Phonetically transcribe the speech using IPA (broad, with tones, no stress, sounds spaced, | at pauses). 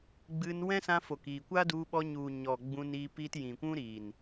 ɡ͡b ɨ˧ n w ɛ̃˦ s ã˧ f o˨ k iː˨ kʷ a˦ d u˧ ɓ ɔ˧ ɲ u˨ ɲ ɔ˨ ɡ͡b ũ˧ n iː˧ p iː˧ t j ĩ˨ kʷ ũ˦ ɾ iː˨ n